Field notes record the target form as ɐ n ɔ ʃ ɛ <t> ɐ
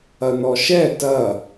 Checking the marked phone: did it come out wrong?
no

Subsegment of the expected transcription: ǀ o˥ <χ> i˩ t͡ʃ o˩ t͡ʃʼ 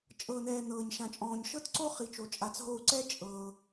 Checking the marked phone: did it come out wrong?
no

